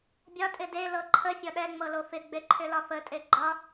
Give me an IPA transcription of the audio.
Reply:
bʲ ɒ tʼ ɪ d e l ɤ ǃʰ ə fʲ ɒ ɗ ɛ ŋ͡m ɤ l o f ɪ ɡ͡b e ǃʰ ʏ l ɒ f ə tʼ e ɡ͡ǃ ɒ

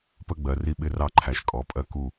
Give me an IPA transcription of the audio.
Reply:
p ə˦ ɡ͡b ɜ˩˧ r i˦ ɓ ɪ˦ r ɑ˦ ǃʰ æ˨˩ ʃ kʼ ɔ˩˧ pʼ ɜ˦˨ k u˦˨

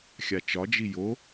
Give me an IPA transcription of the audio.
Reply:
xʲ a t͡ʃ ɒ d͡ʒ i j o

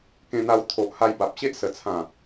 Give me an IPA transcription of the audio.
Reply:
k ẽ˧ n̪ a˧ w t̪ʰ o˨ ʔ h a˧ j b a˨ p̚ ɕ e˦ ʔ s ə˨˩ t͡sʰ ã˨˩

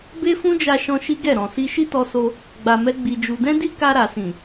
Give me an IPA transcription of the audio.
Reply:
b e˦ f ũ˦ d͡ʒ a˧ ʃ ɔ̃˧ ʃ i˦ ɡ ɛ˦˨ ɾ ɔ̃˨ s i˧ ʃ i˦ t ɔ˧ s o˧ | ɡ͡b a˧ m ɛ˦ ɡ͡b i˧ d͡ʒ u˧ d ɛ̃˦ d i˦ k a˧ ɾ a˨ s ĩ˨

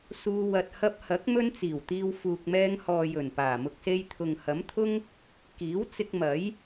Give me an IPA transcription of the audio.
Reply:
s uː˧ w ɐ˨ t̚ h ɐ˧ p̚ h ɐ˨˥ k̚ m ɵ˥ n t͡s iː˨˩ w t̪ iː˧ w f uː˨ k̚ m ɛː˧ ŋ h ɔː˨ j ɵ˨˩ n p aː˨˩ m ʊ˧ k̚ s e˧ j t̪ʰ ʊ˨ ŋ h ɐ˨˥ m t̪ʰ ʊ˥ ŋ | k iː˨˥ w t͡s ɪ˧ k̚ m ɐ˨˥ j

